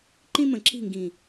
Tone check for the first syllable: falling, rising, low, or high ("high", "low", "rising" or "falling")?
high